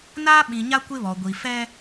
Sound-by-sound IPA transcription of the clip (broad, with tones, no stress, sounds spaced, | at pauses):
n aː˦ ɓ ĩ˨ ɲ a˦ kʷ ɪ˦ β ɔ˨ ɡʷ i˨ f ɛ˦